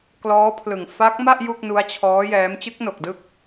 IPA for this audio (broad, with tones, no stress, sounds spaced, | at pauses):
k l ɔː˦˥ pʰ l ɯ˨˩ ŋ f a˦˥ k̚ m a˥˩ ʔ j u˥˩ k̚ n u˦˥ a̯ t͡ɕʰ ɔː˦˥ j ɛː˦˥ m t͡ɕ ɯ˦˥ k̚ n o˨˩ k̚ d ɯ˦˥ k̚